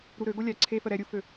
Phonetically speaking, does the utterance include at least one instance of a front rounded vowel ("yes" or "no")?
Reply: yes